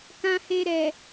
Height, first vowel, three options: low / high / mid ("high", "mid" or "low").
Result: low